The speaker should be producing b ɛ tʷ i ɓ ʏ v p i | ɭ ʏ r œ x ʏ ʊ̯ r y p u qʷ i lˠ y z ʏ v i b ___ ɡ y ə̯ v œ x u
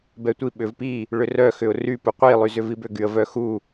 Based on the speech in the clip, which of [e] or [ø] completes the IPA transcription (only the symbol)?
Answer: ø